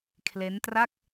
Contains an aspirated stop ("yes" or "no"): yes